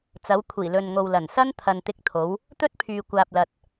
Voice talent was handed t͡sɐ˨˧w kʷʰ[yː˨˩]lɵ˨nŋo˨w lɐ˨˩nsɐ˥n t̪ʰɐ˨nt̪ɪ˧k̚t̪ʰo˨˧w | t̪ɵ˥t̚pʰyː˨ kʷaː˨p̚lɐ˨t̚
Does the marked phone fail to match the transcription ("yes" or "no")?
yes